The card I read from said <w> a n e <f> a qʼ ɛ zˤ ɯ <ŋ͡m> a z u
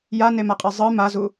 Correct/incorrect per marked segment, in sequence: incorrect: j, incorrect: m, incorrect: m

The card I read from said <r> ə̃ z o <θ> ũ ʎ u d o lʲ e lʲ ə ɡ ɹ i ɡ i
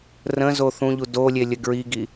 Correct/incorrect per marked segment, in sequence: correct, correct

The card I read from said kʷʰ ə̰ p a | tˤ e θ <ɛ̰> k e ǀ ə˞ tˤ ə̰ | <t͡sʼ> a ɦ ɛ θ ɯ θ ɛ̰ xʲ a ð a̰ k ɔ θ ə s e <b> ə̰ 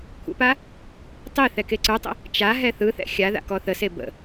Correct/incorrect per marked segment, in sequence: incorrect: ɛ, incorrect: t͡ʃ, correct

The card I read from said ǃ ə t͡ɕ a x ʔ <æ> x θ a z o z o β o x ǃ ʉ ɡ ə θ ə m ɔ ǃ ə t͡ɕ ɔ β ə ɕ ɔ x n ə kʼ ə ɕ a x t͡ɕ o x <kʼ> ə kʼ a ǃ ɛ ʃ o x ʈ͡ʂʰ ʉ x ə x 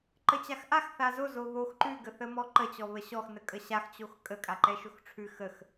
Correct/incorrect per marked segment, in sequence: incorrect: a, correct

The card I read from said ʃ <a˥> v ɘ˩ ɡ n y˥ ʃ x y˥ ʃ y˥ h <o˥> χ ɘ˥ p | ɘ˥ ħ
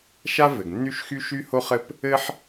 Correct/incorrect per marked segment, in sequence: correct, correct

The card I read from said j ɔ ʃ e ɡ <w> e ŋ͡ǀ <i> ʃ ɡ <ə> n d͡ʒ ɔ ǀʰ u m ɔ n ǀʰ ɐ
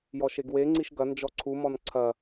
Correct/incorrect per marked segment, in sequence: correct, correct, incorrect: ɐ

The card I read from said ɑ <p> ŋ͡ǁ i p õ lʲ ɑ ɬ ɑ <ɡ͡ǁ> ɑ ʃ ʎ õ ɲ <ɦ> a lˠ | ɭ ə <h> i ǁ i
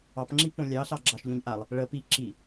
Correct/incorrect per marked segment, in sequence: correct, correct, incorrect: ʔ, incorrect: p

